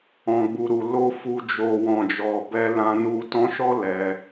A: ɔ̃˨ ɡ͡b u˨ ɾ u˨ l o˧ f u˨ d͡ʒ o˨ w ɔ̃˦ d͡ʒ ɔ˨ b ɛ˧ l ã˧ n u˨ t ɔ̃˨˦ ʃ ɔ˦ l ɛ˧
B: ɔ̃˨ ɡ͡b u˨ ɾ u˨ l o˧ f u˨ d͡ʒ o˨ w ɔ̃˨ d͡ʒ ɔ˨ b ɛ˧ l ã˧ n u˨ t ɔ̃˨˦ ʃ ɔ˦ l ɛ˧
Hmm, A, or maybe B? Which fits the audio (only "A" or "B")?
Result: B